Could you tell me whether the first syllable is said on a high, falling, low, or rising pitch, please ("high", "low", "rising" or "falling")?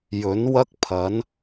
rising